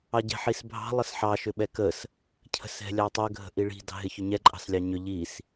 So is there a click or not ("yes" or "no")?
yes